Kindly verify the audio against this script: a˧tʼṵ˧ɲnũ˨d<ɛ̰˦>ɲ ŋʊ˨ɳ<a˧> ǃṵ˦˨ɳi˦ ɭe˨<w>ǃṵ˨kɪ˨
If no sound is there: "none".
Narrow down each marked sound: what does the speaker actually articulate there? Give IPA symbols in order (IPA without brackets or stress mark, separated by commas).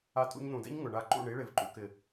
ɛ̰˦, a˧, v